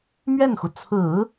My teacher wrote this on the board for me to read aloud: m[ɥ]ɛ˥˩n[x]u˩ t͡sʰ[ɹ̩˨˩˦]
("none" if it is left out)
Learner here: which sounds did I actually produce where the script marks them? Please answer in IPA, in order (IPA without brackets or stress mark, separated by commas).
ɥ, x, ɹ̩˨˩˦